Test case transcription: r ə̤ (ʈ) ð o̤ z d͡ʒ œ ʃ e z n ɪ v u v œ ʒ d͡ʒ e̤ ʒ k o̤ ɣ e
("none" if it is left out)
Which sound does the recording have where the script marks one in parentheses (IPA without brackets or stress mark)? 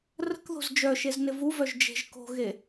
k